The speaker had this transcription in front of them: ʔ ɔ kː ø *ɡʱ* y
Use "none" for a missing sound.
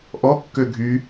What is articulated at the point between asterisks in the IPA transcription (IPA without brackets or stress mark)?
ɡʱ